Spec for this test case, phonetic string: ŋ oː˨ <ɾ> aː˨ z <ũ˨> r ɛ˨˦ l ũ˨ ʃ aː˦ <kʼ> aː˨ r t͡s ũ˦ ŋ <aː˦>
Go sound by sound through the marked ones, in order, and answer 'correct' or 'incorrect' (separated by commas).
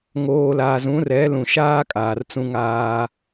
incorrect, incorrect, correct, correct